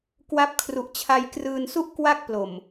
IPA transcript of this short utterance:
kwa˦˥p̚kʰru˨˩ʔ t͡ɕʰa˧jkrɯː˧n su˥˩ʔ kwa˥˩k̚plo˨˩m

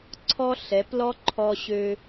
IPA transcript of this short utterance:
ǀʰɔ˥ ɬɛ˩˧plɔ˥ ǃʰɔ˧ɕø˧

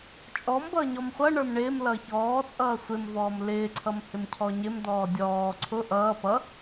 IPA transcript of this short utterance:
t͡ʃʼɔmbʌː ɲɔmχʷʌɳə˞m ɳɪːm lʌçɔːt͡sʼʌː sʷɪmvɔːm lɪːǀʰʌm hɪmcʰɔɲɪmd̪ɔː dʲɔː ǀʰʊ ʔʌː pʌ

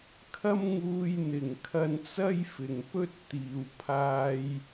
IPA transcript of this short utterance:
kʰɐ˥mŋuː˧jn̪ɪ˨ŋkʰɐ˧n t͡sɐ˥jfɪ˨ŋpɵ˥t̚ t̪iː˨w pʰaː˧j

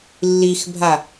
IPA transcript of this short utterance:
lːixbʱa

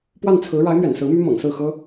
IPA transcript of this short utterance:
pwa˥˩nt͡sʰɹ̩˧˥ ɻa˧˥ɪ̯mɥɛ̰˨˩n sɹ̩˧˥my˥ mɤ̰˨˩ŋsɹ̩˥˩xɤ˥

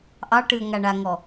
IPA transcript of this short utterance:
ʔɑʈɨə̯ ŋaɳaŋɔ

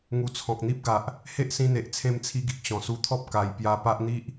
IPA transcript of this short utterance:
ŋu˨˩ t͡sʰɔ̃˨k̚n̪i˦p̚ɡa˨ʔ | he˦ʔsĩ˧n̪e˨ʔ t͡sʰẽ˧mt͡sʰi˧ɡi˨k̚ ɕɔ̃˨˩su˧t̪ʰɔ˦p̚ ka˧j pja˧ pa˦ʔn̪i˦ʔ

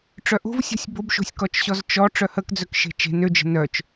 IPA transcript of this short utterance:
ʈ͡ʂœʔo̤vsʲɔ̤sʲ bobʃo̤sʲkɔt͡ʃɕɔz t͡ʃɔ ʈ͡ʂœhəkd͡zœk ʃe̤t͡ʃe̤n ød͡ʒə̤ nœt͡ʃ

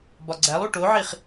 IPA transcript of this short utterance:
bɒɡ͡ǀælˠu ʈoʕiχ

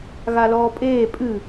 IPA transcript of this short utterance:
ɣalɔːpʼeː pʼɨ

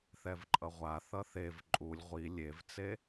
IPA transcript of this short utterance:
θɛvǃʼʌʁʷaθʌ θev ǃʼulʲ ʁʷi lʲevt͡se

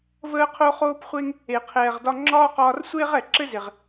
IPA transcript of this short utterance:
vəː˦qʰo˦χoː˦pχʷe˦ŋ | e˨qʰɛː˨ʁdɒ˧ ŋ͡ǁɒː˦qɒː˧rsʷeː˦ʁ ɛ˨ǁɘ˦ze˨ʁ

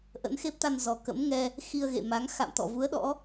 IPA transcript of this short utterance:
ʔə̰˧˥nxe˦˥p̚t̪a˧nzɔ˨˩ kə̰˧˥mŋɛ˧ | xi˧ə̯ɣḛ˧˨ma˨˦ŋ xa̰˧˨mt̪ɔ̰˧˨ vu˨˦ə̯ɗɔ̰˧˥

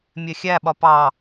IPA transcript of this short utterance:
mʲɛxʲæɓɒ pɑ

